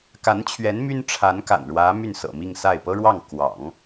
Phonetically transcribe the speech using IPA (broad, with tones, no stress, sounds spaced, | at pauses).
k a˧˥ n t͡ɕʰ ɥ ɛ˧˥ n m y˥ n ʈ͡ʂʰ a˧˥ n k a̰˨˩ n ɻ w ä˧˥ m y˥˩ n s ɤ̰˨˩ m i˥˧ ŋ s a˥˩ ɪ̯ p ɤ˥ ɻ w ɑ˥˩ ŋ k w ɑ̰˨˩˦ ŋ